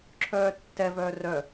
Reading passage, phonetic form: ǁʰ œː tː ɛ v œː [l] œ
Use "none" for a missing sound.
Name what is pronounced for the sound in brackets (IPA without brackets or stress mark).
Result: r